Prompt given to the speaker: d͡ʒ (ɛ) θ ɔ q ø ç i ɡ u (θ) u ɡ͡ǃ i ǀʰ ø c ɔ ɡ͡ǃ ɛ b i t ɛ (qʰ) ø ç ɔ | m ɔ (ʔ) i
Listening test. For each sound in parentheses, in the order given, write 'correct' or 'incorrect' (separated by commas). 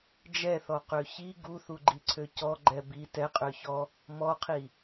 correct, correct, incorrect, incorrect